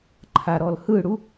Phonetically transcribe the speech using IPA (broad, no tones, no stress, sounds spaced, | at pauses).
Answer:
ǃʰ a ɾ ɔ l h ɯ ɽ u